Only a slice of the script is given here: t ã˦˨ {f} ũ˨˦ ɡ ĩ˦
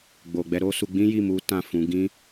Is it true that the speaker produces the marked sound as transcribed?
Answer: yes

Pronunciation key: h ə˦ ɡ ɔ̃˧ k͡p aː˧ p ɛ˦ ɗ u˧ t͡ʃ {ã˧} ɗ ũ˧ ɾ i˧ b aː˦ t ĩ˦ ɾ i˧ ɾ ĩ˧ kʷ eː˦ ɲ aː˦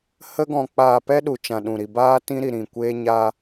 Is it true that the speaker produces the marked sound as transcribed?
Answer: yes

